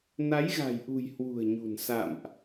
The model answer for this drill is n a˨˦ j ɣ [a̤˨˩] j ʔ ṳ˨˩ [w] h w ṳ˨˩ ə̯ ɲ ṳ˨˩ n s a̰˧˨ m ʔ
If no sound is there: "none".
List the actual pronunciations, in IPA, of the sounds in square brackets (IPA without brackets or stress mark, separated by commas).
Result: a̤˨˩, j